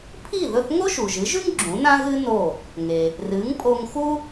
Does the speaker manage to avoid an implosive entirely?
yes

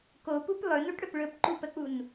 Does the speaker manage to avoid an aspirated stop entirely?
yes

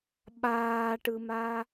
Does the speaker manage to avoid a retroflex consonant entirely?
no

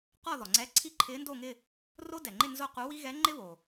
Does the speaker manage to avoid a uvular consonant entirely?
no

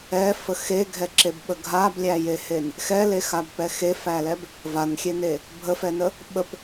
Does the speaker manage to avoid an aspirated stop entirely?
yes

